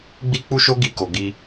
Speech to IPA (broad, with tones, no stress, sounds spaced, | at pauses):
ɡ͡b i˦ k͡p u˦ ʃ o˦ ɡ i˧ k o˨ ɡ i˧